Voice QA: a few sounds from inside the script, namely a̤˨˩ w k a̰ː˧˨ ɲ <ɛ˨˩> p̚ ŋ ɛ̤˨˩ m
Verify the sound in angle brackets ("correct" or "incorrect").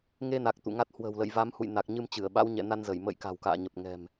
incorrect